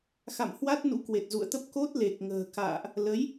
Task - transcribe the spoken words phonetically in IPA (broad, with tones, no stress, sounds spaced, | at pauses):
x a̰˧˨ m h w a˦˥ t̚ n ṵ˧˥ k w e˨˩ t̚ z ṵ˧˨ ə̯ t̪ ə˦˥ p̚ k o˦˥ t̚ l e˨˩ k̚ ŋ ə̤ː˨˩ k a̰ː˧˨ ʔ | l ə˨˦ j